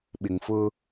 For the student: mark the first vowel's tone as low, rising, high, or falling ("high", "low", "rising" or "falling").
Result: low